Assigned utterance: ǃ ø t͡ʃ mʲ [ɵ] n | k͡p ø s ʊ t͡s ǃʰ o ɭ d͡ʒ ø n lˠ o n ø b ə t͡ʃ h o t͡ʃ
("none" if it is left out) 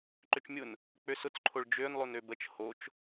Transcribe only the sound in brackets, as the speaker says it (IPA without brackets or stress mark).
ʊ